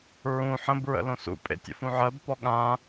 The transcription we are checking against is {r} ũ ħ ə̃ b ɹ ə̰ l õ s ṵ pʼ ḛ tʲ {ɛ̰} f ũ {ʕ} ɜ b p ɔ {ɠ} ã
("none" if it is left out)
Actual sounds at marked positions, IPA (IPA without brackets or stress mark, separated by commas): ɹ, ə̰, ʕ, ɠ